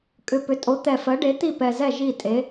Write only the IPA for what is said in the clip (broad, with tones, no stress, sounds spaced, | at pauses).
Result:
kʼ ʏ˨˩ p ʏ˩˥ tʼ o˩˥ t̪ ɛ˨˩ f ɜ˩˥ ɖ e˩˥ t̪ i˥˩ p ɛ˨˩ z ɛ˥˩ ʒ i˥˩ tʼ e˩˥